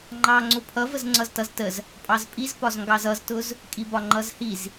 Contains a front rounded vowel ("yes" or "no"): no